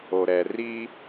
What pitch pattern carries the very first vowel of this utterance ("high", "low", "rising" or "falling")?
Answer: low